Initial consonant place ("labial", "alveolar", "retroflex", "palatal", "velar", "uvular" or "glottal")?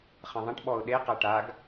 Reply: uvular